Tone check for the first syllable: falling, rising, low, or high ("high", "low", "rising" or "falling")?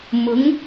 rising